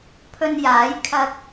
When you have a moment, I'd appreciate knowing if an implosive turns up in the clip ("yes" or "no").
no